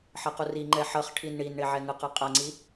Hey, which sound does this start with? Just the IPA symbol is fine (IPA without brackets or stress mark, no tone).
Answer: ħ